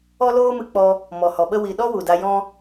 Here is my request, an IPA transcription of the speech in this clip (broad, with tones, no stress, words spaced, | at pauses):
ɔ˦loː˦mɨ˧k͡pɔ˧ | mɔ˨hɔ˨ɓə˦ wi˨ɗɔ˦ wu˨da˧jɔ̃˦